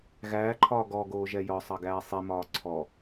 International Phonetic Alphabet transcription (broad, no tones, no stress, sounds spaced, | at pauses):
ɣ æː ǃʰ ɒː ɡ ɔ ɡ oː ʒ ɛ j ɒ sˤ ɑ ɡ æː sˤ i m ɒː ǀʰ ɔ